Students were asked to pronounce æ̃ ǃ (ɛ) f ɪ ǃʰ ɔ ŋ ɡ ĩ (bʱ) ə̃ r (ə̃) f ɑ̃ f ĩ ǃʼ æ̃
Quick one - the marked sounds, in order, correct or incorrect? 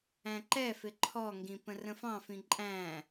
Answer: correct, incorrect, correct

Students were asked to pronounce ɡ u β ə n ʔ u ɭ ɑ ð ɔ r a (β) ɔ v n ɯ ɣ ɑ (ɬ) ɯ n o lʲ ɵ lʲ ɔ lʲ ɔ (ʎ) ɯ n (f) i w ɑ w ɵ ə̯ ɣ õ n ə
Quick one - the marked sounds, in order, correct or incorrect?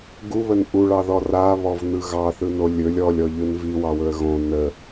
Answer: correct, incorrect, correct, incorrect

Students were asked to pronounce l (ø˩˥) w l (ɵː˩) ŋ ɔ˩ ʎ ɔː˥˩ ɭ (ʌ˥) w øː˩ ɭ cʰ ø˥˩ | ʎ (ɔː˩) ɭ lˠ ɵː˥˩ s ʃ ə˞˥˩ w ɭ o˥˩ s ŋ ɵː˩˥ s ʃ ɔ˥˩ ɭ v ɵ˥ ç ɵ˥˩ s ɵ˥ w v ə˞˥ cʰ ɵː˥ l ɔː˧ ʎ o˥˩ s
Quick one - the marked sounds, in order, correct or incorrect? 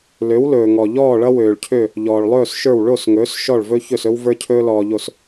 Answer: correct, correct, correct, correct

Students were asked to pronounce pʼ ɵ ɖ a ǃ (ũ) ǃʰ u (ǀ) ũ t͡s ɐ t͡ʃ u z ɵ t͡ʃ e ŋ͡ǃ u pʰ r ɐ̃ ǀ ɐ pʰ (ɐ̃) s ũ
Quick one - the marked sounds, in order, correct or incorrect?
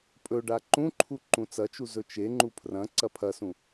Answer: correct, incorrect, incorrect

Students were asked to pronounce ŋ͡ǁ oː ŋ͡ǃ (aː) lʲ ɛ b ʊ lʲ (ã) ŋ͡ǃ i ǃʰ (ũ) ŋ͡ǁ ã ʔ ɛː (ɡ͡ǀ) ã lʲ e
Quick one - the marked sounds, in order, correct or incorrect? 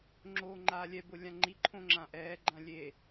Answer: correct, correct, incorrect, incorrect

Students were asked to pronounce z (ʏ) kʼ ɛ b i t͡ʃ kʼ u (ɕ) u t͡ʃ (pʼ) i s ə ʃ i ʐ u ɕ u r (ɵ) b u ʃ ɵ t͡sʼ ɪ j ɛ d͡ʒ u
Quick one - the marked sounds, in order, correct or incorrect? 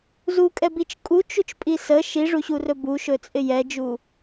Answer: incorrect, incorrect, correct, correct

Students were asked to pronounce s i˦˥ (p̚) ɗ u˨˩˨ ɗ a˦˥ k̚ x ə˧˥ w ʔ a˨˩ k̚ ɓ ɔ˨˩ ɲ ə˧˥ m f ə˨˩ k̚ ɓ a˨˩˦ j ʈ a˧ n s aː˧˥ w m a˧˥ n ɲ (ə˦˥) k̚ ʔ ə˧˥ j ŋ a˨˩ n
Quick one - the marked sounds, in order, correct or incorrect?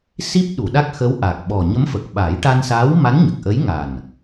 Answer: correct, incorrect

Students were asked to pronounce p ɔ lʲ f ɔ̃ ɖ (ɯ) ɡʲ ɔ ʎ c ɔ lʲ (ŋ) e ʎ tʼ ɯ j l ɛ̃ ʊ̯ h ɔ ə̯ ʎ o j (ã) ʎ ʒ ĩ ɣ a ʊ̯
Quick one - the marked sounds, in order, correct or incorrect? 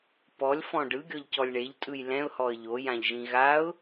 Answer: correct, incorrect, correct

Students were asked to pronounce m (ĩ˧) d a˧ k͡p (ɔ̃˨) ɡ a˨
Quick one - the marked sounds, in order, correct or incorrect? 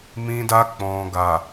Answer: correct, correct

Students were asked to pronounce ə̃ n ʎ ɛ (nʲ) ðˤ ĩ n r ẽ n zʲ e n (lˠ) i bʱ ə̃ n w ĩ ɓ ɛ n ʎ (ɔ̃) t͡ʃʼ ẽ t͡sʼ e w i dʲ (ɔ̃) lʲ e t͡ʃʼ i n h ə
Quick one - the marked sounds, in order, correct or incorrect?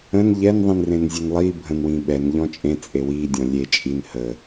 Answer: incorrect, correct, correct, correct

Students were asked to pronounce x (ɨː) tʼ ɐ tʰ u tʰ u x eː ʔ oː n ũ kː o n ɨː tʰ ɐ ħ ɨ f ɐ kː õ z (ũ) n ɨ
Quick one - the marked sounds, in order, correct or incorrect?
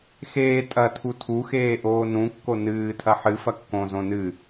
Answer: incorrect, incorrect

